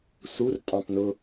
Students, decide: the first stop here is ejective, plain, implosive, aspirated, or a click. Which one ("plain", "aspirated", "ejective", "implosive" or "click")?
ejective